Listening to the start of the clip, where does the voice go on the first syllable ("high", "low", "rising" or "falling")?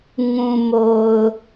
low